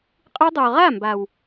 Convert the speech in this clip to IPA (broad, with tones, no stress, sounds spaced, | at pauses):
qʼ ɯ˧ dˤ o˨ ʁ a˦˨ m b a˨ w